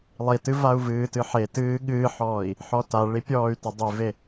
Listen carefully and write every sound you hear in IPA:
lˠ i t ɨ v a u̯ v ɨː t ɨ ħ e t ɨː ɠ ɨː ħ ɔː i̯ | ħ ɔ t a ɭ i pʲ ɔː y̯ t ə dˤ i v e

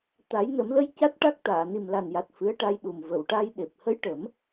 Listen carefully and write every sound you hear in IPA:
t̪ a˨˩˦ j n ə˨˩˦ m l ə˧˥ j c a˦˥ t̚ ʈ a˦˥ k̚ t̪ aː˨˩˨ n i˨˩ m l a˨˩ n j a˨˩ t̚ f ɨ˧˥ ə̯ ʈ a˧ j ɗ u˨˩ m v ə˨˩˨ w ʈ a˧ j ɗ e˨˩ p̚ h ə˧˥ j ʈ ə˨˩˦ m

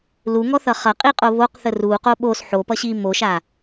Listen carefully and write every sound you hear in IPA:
l u ŋ ɔ θ ʌ χ ʌ qʼ i qʼ o β o q θ ə r u q o ɓ o s ħ o p ʌ ɕ i m o ʃ a

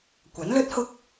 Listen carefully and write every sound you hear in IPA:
kʷ ɐ˨˥ n l ɵ˥ t̚ h ʊ˥ k̚

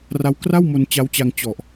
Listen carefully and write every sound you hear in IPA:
r a˦˥ w k r a˥˩ w m o˧ n t͡ɕ a˦˥ w t͡ɕ a˧ ŋ t͡ɕ ɔ˨˩ ʔ

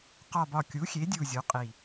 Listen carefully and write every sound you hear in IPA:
q ɒ˨˩ b ɒ˨˩ kʲ u˩˥ xʲ e˩˥ dʲ u˨˩ zʲ o˩˥ qʼ i˨˩

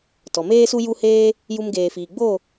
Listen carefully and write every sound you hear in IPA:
t ɔ˨ m eː˦ s u˦ j u˧ h eː˧ | j u˧ m ɡ eː˨ f iː˨ ɡ͡b o˦˨

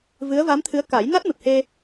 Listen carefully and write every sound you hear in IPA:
v ɨ˧˥ ə̯ v a˧˥ m t̪ʰ ɨ˧˥ ə̯ k a˨˩˦ j n a˦˥ t̚ m ɨ˨˩ p̚ h e˧

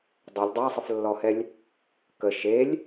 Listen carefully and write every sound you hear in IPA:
dˤ o lʲ dˤ a sˤ ə f lː ɔ h ɛ lʲ | k ə ʃ e lʲ

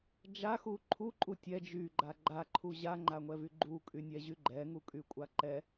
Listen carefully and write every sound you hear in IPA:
d͡ʒ a x u ǃʰ u ǃʼ u tʲ ɛ d͡ʒ y ɡ͡ǃ a ɡ͡ǃ a ǃʰ u ʑ a ŋ͡ǃ a ŋʷ ɛ v y ɡ͡ǃ u kʼ y nʲ ɛ ʑ y ɡ͡ǃ ɛ ŋ u kʼ y kʷʼ a ǃ ɛ

